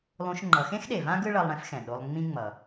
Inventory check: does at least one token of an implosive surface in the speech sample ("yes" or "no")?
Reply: yes